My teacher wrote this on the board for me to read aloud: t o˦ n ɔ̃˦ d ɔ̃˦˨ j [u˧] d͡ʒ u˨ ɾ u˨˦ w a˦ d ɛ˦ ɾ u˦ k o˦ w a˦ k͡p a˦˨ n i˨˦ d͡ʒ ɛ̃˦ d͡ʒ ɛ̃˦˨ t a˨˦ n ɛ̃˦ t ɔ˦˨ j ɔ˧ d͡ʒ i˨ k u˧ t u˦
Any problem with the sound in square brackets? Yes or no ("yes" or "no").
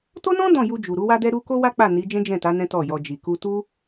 no